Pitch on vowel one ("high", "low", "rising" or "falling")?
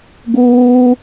high